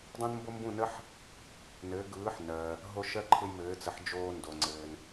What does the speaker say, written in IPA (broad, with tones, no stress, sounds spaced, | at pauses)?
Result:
dˤ õ˥ n m b o˥ m b ũ˥˩ n ə˥ ħ | n ɘː˩˥ ɡ ɯː˩˥ ħ n ɜ˩ | ɦ o˧ ʃ ɜ˥ ǃʰ ɯ˧ j m ɘː˩˥ t͡s ə˩˥ ħ d͡ʒ oː˧ n d o˩ ŋ͡ǀ ɘː˩ n